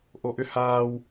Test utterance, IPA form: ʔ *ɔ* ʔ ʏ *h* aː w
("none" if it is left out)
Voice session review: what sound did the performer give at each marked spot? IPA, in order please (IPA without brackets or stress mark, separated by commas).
o, h